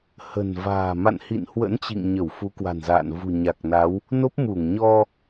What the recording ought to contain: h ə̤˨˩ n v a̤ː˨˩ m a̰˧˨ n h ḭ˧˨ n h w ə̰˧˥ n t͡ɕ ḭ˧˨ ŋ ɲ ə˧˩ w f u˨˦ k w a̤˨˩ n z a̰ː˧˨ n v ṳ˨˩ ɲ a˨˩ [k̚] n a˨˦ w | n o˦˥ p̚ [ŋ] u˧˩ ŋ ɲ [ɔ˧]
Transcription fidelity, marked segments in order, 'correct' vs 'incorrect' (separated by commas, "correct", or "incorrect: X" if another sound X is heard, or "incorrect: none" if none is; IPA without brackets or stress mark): correct, incorrect: m, correct